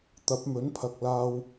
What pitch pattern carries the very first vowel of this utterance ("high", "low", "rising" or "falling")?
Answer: rising